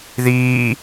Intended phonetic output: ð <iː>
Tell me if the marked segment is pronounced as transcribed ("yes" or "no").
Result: yes